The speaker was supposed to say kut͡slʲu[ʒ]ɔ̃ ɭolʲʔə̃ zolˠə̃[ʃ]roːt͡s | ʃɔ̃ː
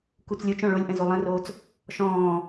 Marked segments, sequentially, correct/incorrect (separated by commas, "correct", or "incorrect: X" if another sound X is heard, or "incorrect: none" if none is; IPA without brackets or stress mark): incorrect: t͡ʃ, incorrect: none